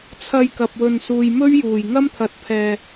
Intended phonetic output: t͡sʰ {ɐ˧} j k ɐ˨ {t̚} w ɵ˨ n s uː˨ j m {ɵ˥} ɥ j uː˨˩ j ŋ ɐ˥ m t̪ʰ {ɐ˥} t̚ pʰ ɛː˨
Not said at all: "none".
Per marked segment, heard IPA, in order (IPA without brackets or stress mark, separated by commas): ɐ˧, p̚, ɵ˥, ɐ˨˥